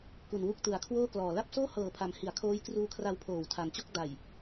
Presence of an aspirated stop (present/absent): present